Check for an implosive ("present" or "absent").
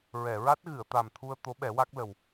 present